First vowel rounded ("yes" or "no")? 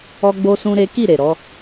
yes